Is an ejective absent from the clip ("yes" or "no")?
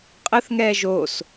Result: no